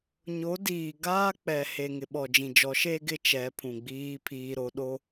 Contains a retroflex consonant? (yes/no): no